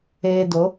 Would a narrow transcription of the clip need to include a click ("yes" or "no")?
no